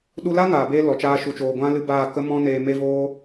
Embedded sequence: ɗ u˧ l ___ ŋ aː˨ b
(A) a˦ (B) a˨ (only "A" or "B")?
A